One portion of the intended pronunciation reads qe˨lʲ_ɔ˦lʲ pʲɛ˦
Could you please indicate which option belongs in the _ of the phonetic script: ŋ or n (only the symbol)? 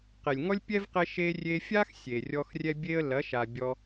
ŋ